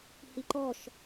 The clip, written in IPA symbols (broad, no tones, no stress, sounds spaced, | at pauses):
h i ǃ ɔ ʃ